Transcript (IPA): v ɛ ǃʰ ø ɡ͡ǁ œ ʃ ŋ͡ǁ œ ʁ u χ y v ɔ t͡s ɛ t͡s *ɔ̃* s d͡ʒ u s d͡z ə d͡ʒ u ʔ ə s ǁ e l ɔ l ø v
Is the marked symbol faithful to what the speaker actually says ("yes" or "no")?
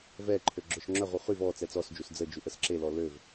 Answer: no